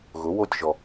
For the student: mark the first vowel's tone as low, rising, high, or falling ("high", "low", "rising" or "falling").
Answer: rising